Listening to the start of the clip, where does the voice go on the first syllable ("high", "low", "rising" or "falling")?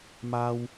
high